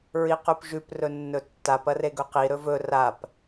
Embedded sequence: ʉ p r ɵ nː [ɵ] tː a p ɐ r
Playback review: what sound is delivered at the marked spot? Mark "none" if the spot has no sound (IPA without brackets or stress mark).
ɵ